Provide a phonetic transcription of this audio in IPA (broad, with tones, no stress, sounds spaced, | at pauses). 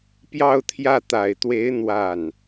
p j ɑ˥˧ ʊ̯ t̪ʰ j ä˥˩ t̪ a˨˩ ɪ̯ t̪ w e˧˥ ɪ̯ n̪ w a˥˩ n